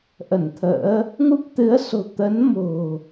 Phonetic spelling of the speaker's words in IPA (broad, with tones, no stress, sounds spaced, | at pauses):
ʔ ə˧˩ n t̪ʰ ə̰ː˧˥ | ŋ u˦˥ p̚ t̪ ɨ˨˦ ə̯ s o̤˨˩ t̪ ə˨˦ n m o̤˨˩